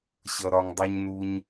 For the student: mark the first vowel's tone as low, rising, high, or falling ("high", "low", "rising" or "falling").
low